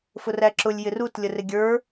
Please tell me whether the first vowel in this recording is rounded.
yes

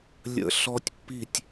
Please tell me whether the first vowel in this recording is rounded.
no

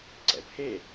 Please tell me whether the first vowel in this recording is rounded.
no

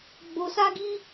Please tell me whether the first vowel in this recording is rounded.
yes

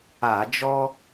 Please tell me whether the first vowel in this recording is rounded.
no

